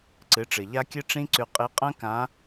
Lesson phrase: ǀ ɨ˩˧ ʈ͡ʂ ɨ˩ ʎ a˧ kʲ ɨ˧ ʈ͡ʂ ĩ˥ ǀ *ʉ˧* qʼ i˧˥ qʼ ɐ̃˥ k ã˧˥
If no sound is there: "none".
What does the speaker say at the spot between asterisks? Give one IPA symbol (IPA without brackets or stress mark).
ʉ˧